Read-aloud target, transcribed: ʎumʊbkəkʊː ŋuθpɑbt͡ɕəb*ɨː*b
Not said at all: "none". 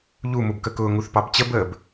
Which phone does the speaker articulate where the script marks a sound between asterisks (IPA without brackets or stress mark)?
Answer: əː